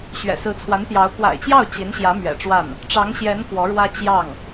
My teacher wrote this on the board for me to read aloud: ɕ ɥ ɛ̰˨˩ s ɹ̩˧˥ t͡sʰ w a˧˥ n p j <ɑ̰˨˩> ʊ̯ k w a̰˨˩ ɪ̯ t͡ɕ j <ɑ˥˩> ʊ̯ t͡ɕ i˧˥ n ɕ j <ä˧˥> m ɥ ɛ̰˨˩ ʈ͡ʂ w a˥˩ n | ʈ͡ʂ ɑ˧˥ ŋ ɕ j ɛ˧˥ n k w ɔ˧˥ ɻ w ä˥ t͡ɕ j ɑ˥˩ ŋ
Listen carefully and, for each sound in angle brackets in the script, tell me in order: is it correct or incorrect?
incorrect: ɑ˧˥, correct, correct

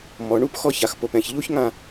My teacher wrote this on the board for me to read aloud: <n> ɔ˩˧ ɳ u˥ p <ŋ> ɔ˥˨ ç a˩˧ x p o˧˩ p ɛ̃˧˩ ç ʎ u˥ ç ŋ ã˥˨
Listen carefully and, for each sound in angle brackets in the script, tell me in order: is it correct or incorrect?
incorrect: m, incorrect: x

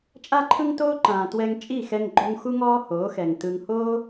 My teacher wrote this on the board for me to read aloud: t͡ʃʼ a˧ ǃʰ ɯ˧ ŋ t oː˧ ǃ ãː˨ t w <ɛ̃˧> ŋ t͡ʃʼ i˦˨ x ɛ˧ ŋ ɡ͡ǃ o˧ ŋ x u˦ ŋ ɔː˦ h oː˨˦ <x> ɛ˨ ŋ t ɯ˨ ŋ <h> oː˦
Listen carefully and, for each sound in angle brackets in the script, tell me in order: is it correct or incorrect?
incorrect: ɛ˧, correct, correct

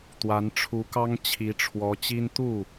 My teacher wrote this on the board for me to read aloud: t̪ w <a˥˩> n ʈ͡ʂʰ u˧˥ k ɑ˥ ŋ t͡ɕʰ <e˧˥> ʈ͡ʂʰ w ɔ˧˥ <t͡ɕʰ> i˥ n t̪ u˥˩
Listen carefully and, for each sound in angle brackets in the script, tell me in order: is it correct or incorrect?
incorrect: a˧˥, incorrect: i˧˥, incorrect: t͡ɕ

